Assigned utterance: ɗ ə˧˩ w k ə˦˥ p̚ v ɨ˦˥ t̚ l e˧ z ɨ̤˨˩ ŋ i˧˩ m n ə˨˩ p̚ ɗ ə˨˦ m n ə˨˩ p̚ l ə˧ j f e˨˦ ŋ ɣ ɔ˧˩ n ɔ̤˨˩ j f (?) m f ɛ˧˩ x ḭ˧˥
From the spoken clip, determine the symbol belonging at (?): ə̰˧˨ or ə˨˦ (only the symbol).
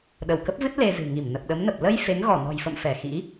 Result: ə̰˧˨